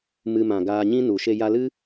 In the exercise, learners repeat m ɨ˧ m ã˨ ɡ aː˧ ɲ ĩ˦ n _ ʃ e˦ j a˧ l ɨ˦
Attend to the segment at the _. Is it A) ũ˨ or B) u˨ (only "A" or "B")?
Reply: B